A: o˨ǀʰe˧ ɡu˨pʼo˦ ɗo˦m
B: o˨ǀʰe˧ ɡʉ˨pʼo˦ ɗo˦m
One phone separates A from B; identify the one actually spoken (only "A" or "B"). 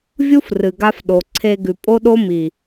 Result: B